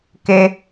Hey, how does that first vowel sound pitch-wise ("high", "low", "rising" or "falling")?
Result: high